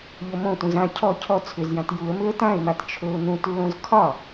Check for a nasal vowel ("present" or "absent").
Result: present